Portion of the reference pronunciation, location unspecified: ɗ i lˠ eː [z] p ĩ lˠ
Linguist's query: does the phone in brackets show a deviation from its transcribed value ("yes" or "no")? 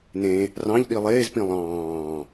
no